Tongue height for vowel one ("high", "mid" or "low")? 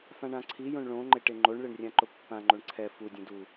low